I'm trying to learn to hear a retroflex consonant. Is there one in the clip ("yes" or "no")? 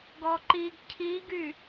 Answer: no